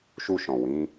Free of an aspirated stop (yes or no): yes